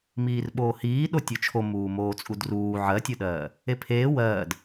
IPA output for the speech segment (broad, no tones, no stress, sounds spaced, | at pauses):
m iː r ɓ oː h iː ɗ o tʲ o t͡ʃʰ o m uː m oː t͡sʼ u d r uː ʕ ɜ tʲ o ɗ ɜː | e pʰ eː w ɜː d